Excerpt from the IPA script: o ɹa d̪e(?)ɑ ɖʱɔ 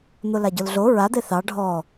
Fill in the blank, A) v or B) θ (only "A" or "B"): B